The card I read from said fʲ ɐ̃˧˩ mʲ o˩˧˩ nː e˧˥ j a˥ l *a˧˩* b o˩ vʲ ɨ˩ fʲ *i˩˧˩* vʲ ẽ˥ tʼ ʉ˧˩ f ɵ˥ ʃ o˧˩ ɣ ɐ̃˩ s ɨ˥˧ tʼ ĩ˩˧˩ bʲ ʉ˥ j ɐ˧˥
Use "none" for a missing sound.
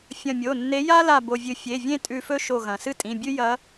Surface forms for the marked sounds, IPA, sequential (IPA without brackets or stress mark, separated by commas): a˧˩, e˩˧˩